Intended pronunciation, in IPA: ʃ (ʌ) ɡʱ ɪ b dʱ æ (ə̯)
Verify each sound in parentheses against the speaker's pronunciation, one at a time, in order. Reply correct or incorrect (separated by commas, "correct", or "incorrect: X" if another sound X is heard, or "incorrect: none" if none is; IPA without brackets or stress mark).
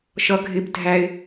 correct, incorrect: ɪ̯